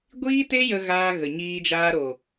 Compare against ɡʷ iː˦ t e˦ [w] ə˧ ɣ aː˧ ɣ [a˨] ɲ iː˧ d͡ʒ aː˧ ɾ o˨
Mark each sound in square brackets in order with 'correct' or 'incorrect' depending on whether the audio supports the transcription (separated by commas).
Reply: incorrect, incorrect